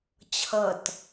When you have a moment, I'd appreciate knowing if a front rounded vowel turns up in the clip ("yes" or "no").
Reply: no